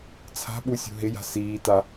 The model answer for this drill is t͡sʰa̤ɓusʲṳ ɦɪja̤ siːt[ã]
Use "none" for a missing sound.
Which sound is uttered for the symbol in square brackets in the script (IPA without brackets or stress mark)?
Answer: a